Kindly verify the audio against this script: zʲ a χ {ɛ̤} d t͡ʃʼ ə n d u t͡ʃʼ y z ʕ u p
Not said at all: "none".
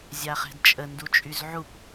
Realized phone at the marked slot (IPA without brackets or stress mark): ɛ̤